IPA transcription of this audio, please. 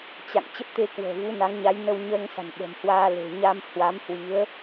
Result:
t͡ɕ a̰˧˨ ŋ t͡ɕ ə˦˥ p̚ t̪ e˧ k w ə̤ː˨˩ v u˨˦ n a˨˦ ŋ ɲ a˨˦ j n ə˧ w ɲ əː˧ ŋ s a̤˨˩ n ɓ ə̤˨˩ m h w aː˧ l e̤˨˩ ɲ a˧ m h w a˨˦ m h w i˨˦ ə̯

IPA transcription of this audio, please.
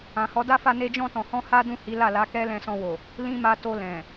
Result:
ã˨ h ɔ˨˦ d a˦ f a˧ n e˧ d͡ʒ ɔ̃˧ t ɔ̃˨ h ɔ̃˧ h a˦ d ũ˦˨ h i˨˦ l a˦˨ l a˨˦ k ɛ˦ l ɛ̃˧ s ɔ̃˧ w o˨ | l ĩ˦ m a˧ t o˧ l ɛ̃˨

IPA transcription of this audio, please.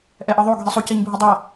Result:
ʔ ɛ ʔ ɤ ðˤ o ɡʱ i sˤ u c i ɲ bʱ u dˤ a

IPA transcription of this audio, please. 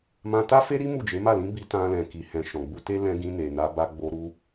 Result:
m ã˧ t a˦ f e˦ ɾ i˦ m u˦˨ d͡ʒ e˨˦ m a˦˨ l ĩ˨˦ b i˧ t ã˧ l ɛ̃˨ k i˨ h ɛ̃˨ ʃ ɔ̃˨ ɡ͡b u˧ t e˦ l ɛ̃˧ ɡ ĩ˧ n e˨ n a˧ b a˧ ɡ͡b o˧ ɾ u˦

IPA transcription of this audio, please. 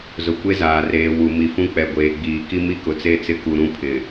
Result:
z ʊ˨ kʷ e˦ z aː˨ r eː˨ w u˨ m i˨ f ũ˦ k͡p ɛ˨ ɡʷ eː˨ ɡ͡b iː˨ k i˦ m i˦ k ʊ˨ t͡s e˦ t͡s ɪ˦ k u˨ ɾ ũ˦ pʰ ɪ˨

